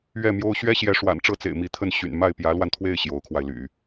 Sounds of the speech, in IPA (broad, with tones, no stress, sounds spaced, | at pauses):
ɥ ɛ˥˩ m j o˥ ʊ̯ ɕ ɥ ɛ˥ ɕ j ɛ˧˥ ʂ w a̰˨˩ n ʈ͡ʂ ɤ˥˩ t͡s ḛ˨˩ ɪ̯ m i˧˥ t̪ʰ ə˥˩ n ɕ y̰˨˩ n m a˥˩ ɪ̯ p j ä˧˥ l w a˧ n t̪ʰ w e˥˩ ɪ̯ ɕ j o˧˥ ʊ̯ kʰ w a˧ ɪ̯ l y̰˨˩˦